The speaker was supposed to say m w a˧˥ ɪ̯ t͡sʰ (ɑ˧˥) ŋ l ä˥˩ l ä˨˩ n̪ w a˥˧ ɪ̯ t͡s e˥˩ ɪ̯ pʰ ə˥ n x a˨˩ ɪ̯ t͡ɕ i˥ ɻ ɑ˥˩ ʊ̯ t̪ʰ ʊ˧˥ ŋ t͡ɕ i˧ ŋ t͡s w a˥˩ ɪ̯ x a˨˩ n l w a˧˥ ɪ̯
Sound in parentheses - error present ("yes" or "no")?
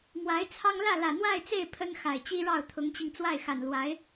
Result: yes